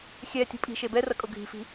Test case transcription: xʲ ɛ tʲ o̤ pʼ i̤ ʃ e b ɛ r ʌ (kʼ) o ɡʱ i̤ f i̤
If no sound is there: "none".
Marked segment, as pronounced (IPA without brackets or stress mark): kʼ